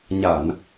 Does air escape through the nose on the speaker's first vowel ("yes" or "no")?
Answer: no